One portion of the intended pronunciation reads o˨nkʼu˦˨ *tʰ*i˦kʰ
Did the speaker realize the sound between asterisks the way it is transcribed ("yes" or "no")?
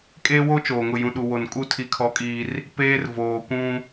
yes